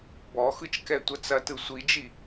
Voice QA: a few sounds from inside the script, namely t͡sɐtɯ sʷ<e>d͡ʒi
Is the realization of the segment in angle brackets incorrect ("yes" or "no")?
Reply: yes